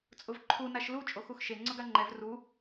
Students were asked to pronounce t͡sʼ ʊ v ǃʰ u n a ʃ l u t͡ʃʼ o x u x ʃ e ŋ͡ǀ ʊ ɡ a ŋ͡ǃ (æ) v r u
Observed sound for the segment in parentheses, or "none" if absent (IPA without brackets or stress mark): ɛ